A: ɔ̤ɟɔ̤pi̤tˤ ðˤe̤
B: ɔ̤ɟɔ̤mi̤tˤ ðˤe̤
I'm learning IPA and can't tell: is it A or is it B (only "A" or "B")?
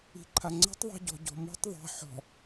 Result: B